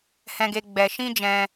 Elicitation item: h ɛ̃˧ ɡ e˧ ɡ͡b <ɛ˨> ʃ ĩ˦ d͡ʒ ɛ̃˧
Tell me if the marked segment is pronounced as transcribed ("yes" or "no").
no